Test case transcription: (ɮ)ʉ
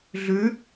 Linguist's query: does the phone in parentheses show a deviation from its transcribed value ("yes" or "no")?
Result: no